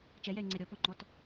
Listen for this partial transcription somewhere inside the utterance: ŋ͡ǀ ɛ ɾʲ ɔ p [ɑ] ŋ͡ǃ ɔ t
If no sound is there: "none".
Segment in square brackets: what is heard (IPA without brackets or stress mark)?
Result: ɔ